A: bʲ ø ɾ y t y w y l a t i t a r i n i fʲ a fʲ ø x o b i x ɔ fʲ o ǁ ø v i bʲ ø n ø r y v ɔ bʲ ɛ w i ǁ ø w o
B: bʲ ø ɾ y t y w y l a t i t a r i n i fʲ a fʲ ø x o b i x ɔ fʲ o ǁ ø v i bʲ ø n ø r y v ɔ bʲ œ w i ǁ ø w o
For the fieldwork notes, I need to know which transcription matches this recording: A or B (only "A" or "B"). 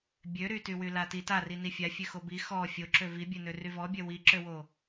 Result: B